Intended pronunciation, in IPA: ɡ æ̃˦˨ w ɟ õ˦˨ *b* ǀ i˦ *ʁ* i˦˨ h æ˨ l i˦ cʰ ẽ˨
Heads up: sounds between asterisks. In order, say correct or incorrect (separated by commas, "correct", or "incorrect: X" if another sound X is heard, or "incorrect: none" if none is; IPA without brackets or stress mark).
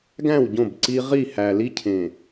correct, correct